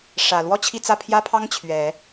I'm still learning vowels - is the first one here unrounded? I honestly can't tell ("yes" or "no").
yes